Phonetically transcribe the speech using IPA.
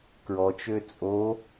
k ɹ ɔ t͡ʃ ø t͡sʼ o

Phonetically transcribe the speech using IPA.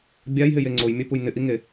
bʲ a j ɦ ɪ j e ŋ͡ǀ o j mʲ œ p u j n ɪ ʔ i ŋ e

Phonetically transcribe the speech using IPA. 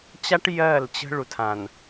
t͡ɕ a˦ ʈ j ɜ˦˨ l t͡ɕ ə̤˦ ɭ u˨ tʰ ã˨ n

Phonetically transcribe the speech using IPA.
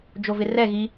d͡ʒ o v ɪ r ɛ ɣ i

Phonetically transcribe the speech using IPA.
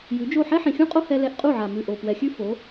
j ʉ˨˦ d͡ʒ o˦˨ ħ ɛ˦ ħ ĩ˨ xʲ ũ˦ qʼ o˦ h ɛ˧ l ɛ˧ ʔ qʼ u˦˨ ʕ a˨ m ʉ˨ ʔ o˨ p w ɛ˨ xʲ ʉ˦ f o˨˦

